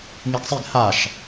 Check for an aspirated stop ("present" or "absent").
absent